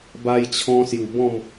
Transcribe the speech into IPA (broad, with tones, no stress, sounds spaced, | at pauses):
b a˧ j t͡ɕʰ ɔ̃˧ s j u˨˩ b ɔ̃˥˧ m